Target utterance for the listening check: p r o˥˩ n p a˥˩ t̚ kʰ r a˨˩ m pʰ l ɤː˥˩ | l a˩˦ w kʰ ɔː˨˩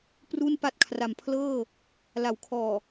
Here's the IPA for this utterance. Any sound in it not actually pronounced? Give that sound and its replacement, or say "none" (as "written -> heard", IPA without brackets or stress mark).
o˥˩ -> u˥˩